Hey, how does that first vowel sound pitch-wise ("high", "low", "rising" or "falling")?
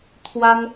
high